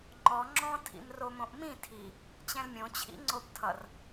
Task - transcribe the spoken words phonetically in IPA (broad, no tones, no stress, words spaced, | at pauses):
ŋ͡ǃɔ ŋ͡ǁɔ̃ tʰḭmromõʔmĩ tʰi | t͡ɕɛ̃lmʲõ t͡ɕʰḭŋ͡ǀobtʰʌr